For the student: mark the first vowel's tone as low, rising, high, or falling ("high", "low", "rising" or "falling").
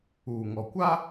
low